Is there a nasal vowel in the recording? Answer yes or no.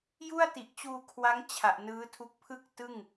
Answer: no